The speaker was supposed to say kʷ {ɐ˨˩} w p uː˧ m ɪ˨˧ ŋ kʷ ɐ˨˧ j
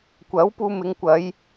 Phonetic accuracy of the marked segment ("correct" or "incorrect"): incorrect